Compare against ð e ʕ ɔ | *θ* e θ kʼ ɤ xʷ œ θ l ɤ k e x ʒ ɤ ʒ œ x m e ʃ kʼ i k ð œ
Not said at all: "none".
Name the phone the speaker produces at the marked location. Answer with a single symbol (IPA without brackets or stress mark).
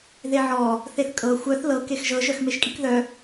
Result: θ